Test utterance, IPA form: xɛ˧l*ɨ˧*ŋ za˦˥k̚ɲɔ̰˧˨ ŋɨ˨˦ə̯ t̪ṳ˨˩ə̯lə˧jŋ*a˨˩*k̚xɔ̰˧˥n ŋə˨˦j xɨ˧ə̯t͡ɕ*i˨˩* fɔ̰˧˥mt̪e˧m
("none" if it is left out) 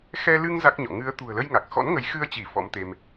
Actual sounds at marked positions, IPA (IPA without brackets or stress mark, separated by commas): ɨ˧, a˨˩, i˧˩